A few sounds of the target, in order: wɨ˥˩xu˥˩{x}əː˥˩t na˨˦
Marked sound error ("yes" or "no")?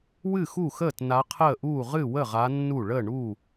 no